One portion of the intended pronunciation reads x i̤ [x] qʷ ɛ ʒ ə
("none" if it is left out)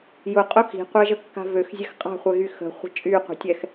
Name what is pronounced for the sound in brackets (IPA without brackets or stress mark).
none